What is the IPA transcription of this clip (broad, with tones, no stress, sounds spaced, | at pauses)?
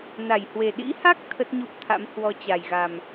n a˧˩ j h w e˨˩ ɗ ḭ˧˥ h a˦˥ k̚ t̪ʰ ə˦˥ t̚ ɲ u˦˥ p̚ t̪ʰ a̰˧˥ m h w ɔ˨˦ t͡ɕ a˨˩ j ɣ a˨˩ m